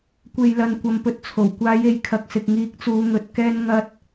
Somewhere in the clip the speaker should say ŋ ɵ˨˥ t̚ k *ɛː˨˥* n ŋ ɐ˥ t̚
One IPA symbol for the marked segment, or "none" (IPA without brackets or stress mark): ɛː˥